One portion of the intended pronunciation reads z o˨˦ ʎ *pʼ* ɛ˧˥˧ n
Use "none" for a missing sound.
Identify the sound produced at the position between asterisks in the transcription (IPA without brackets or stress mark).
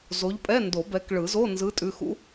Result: pʼ